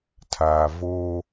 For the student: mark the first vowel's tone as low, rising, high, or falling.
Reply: low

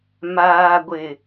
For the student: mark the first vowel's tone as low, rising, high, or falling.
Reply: low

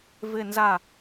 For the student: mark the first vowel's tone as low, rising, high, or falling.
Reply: falling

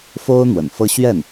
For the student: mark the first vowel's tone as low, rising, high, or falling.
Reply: high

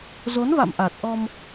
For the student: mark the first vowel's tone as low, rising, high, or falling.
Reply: rising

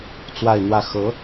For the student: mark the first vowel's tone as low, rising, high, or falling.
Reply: falling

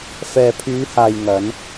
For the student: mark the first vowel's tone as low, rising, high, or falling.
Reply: low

